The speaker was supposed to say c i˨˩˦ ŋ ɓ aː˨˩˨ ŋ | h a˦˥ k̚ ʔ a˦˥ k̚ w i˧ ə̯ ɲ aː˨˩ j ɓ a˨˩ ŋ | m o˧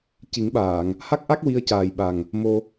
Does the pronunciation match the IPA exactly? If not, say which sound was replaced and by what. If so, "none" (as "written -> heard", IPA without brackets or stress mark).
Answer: ɲ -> c